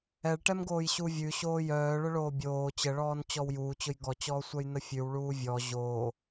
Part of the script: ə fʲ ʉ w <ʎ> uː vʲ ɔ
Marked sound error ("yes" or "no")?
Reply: yes